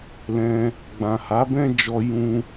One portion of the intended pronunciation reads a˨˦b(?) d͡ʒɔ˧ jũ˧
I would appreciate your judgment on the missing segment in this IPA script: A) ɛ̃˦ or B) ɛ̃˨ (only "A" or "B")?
A